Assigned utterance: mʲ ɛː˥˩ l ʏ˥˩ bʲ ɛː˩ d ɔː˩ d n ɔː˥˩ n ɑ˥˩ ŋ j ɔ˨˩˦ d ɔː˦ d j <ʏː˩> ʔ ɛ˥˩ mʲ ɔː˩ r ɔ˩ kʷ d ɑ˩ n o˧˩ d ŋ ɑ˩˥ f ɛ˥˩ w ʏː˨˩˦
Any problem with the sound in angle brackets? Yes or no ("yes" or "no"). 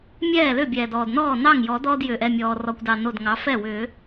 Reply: no